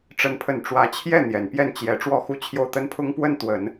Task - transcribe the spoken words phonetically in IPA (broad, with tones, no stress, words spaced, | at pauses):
ʈ͡ʂə˥˧npʰə˥˩n ʈ͡ʂwä˧˥t͡ɕʰjɛ˥˩ n̪jɛ˨˩npjɛ˥˩n t͡ɕjɛ˧˥ ʈ͡ʂwɔ˥˩xu˥t͡ɕʰjo˥˩ʊ̯ t̪ə˥npʰʊ˥ŋpwə˥˩n t̪wə˨˩˦n